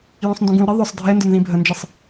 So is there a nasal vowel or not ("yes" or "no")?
yes